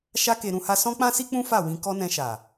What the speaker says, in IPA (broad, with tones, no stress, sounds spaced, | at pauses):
ʃ a˦ k e˧ ɾ ũ˦ h a˦ s ɔ̃˦ k͡p ã˦ s i˦ k͡p ũ˦ f a˦˨ w ĩ˧ k ɔ˦ n ɛ̃˧ ʃ a˨